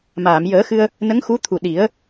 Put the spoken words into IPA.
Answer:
m aː˨˩˨ m j əː˨˩˦ x ɨ˧ ə̯ | n ə˧˥ ŋ x u˧˥ t̪ʰ u˨˩ ɗ i˨˩˦ ə̯

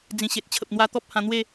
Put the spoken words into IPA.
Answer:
d͡z ĩ˨˩ ɕ e˨ t̚ t͡ɕʰ ə˨ p̚ n̪ w a˧ t̪ ɔ˦ p̚ h ã˧ n̪ w e˥˧

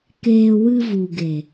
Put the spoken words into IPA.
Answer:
k eː˧ w ɨ˧ v u˨ ɡ e˨

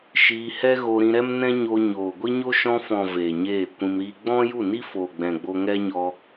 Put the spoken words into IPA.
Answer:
ʃ iː˧ h ɛ˦ ɣ o˧ ɾ ĩ˧ ɾ ɛ˦ m n ɛ̃˦ ɲ oː˧ ɲ oː˨ ɡʷ i˦ ɲ o˦ ʃ ɔ̃˧ f ɔ̃˨ v eː˨ ɲ eː˦˨ kʷ ĩ˧ m ɾ iː˦ ɡ͡b ɔ̃˦ j u˦˨ n i˦ f oː˨ ɡ͡b ɛ̃˨ ɡ͡b o˧ ŋ ɛ˦ ɲ ɔ˧

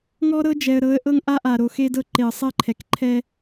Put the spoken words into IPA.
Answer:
ŋ ɔ˦ ɾ ɤ˦ d͡ʒ ɛ˨ ə̯ ɾ ɤ˨˦ ə̯ ʔ ɤ˦ ŋ ʔ a˦ ʔ a˨ ɾ o˨ x e˦ d ɤ˦ ǃ e˨ ə̯ sˤ ɛ˦ ǃʰ ɛ˨ k ǃʰ ɛ˦

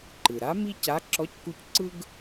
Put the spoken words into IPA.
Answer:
ǃ ɯ˩ ɾ a˧˥ m i˥ c a˧˥ ǁ ɔ˧˥ c k u˧ c ǀ ɯ˥ ɡ

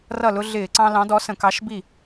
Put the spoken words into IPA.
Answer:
r ʌ˥˩ l ʊ˦ ɮ ɪː˧˩˧ ǀ ɑ̃˦ l ɑ̃˨˥ d ɔ˨˥ s ə̃˧˩˧ k ɑ˨˥ ʃ b i˥˩

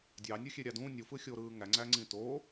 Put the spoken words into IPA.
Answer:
dʲ ɑ nʲ u xʲ e ɾʲ ɑ d ũ nʲ u f ɯ xʲ o ɾ ɯː ŋ æ ŋ͡ǀ æ ŋ͡ǀ ĩ t o

